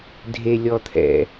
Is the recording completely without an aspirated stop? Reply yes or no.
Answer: no